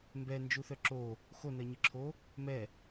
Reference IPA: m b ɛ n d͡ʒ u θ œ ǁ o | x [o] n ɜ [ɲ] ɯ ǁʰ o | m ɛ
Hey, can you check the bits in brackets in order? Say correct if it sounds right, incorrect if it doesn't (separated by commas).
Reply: correct, correct